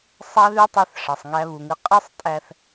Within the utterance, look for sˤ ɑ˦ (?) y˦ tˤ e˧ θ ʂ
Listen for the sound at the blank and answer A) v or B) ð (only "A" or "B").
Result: B